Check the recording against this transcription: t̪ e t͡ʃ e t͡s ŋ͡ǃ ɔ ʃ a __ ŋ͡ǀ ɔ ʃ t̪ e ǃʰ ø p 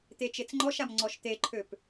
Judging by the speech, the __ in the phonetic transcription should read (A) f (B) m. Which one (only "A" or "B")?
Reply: B